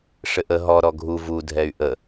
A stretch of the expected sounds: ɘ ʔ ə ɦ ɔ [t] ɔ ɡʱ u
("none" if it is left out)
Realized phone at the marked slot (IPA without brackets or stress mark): ɾ